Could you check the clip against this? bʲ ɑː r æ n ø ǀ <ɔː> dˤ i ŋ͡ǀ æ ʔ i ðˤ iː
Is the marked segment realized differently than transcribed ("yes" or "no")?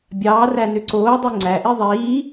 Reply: yes